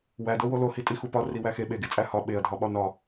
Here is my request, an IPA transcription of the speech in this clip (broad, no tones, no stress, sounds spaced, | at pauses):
w æ d o w o l o h i tʼ i x u p ɒ r i w æ x e ɓ e ɡ e t͡sʼ æ h ɒ ɓ e ɐ̯ dʱ ɒ ɓ ɒ n ɒ